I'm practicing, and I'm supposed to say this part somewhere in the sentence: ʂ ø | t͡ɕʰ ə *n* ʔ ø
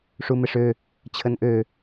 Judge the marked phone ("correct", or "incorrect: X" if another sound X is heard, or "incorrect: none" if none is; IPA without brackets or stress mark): correct